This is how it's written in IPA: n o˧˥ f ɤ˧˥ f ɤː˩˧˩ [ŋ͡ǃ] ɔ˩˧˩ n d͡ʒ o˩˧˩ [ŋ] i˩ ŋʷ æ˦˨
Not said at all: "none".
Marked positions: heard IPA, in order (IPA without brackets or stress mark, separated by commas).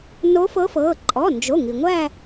ǃʼ, ŋ